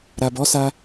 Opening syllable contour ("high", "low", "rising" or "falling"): low